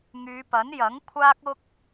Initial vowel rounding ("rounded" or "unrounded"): rounded